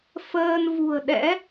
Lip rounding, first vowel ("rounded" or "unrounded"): unrounded